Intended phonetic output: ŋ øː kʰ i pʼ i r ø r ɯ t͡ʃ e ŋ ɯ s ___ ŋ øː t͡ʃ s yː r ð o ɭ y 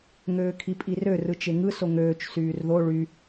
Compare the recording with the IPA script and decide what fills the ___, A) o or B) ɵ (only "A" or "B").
A